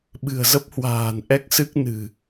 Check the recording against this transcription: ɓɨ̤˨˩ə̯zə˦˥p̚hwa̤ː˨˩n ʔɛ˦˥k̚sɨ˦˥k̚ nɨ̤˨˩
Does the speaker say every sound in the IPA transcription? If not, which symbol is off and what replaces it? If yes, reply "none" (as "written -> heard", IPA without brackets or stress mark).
none